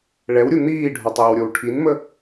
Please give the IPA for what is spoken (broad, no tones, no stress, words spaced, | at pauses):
ɭɛwɾʲu n̪iːɖʱɔtˤəːwɾʲow ʈʰinmə